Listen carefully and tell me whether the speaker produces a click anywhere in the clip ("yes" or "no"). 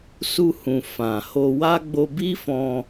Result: no